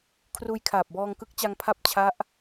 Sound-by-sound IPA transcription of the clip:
kʰruː˧jkʰaː˨˩p̚ bɔː˧ŋkɯ˦˥k̚t͡ɕa˧ŋ pʰa˥˩p̚t͡ɕʰa˦˥ʔ

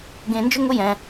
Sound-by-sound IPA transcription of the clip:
ɡẽ˧nd͡ʒʊ˦ŋʊ˦ jɛ̃˧

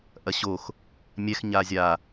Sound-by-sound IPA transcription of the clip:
ʔɐɕox | mʲɛx ɲazʲa

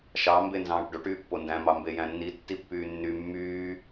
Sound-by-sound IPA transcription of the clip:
ʃɑ mbenzɑ̃ːʈɖoʈ yːpːondæ̃ mɑmbejæ̃nːi tːipːyːnːy mːyː

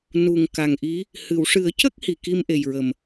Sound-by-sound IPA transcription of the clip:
nu˨˩ŋka˨˩ŋʔi˧˥ | hɨ˨˩˨wʂɨ˨˩˦ə̯cə˦˥k̚ hi˨˩ki˧mʔe˨˩jɹə˨˩m

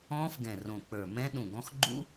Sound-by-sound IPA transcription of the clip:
ɔ̃ː˦˥fɡɛ̃˨˩rõ˨˩k͡pə˞˨˩ mɛ̃˦˥ ɗũ˨˩ɡɔ̃˦˥x ɡ͡ǃṵ˦˥

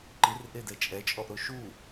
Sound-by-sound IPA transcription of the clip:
ǃirʔedɛ t͡ʃʼɛt͡ʃʼɔʔɾo ʃu

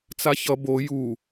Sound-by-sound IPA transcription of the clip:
t͡saçʌ bo ju

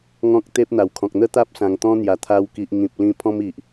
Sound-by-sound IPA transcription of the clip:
ŋɔ̃˦k̚t̪e˦p̚n̪a˨˩wkʰɔ̃˨k̚ n̪ə˦ t̪a˦p̚sã˨˩ŋ t̪ɔ̃˦n̪ja˨˩t̪ʰa˧wki˨ʔ ŋĩ˨p̚lĩ˧ pʰɔ̃˦mi˨ʔ

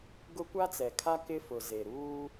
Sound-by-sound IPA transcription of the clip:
ɡʊ˦ kʷa˦t͡sɛ˨kʰa˦ kɪ˦fʊ˨ze˨ ɾuː˦

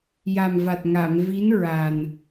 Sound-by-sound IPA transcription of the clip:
ja˨˩mva˨˩t̚ ŋa˨˩˨m vi˧˥nɹa˨˩n

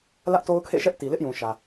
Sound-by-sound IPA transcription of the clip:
lä˦ʔto˦ʊ̯kʰḛ˦˨ʃɛ˦ʔ ti˨lɪ˦ʔjũ˨ʃä˨

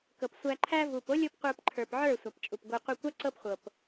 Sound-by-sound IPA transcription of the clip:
kɤ˨psʷæ˧ǃʰæ˦ vu˨po˦ lʲo˦pqʷə˞˧pǃʰə˞˨pʕə˞˦˨ sʷa˨pt͡ʃʼu˨pɡʷɤ˧ qʷə˞˧kʷa˦ ǀɤ˦pχʷɤ˨p

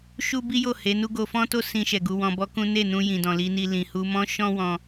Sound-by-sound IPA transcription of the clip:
ʃu˦bi˦jo˦˨ he˨˦nu˦ ɡo˧fɔ̃˦to˦ sĩ˧ʃɛ˨ ɡu˧wɔ̃˧bɔ˦kũ˦ ne˦˨nũ˧ jĩ˨dɔ̃˨li˨˦ni˧ lĩ˨hu˧mɔ̃˦ ʃɔ̃˦wɔ̃˧

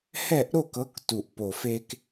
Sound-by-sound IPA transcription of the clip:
hɛ˦˨ʔɾo˦˨kɤ˨˦k tu˨˩ʔpo˨˩fe˦k

